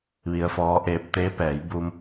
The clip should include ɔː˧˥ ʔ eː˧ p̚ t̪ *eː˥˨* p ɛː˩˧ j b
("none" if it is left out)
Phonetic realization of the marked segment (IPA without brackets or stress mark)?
eː˧˥